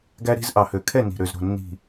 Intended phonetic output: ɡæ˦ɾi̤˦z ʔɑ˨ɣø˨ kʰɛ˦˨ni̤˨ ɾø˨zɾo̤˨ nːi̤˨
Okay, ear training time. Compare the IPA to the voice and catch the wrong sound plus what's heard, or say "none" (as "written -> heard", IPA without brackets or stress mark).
ɣ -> h